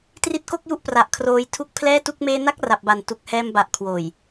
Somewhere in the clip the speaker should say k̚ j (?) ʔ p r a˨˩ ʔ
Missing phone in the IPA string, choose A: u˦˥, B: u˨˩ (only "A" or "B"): A